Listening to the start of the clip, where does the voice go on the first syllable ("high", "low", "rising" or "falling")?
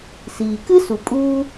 low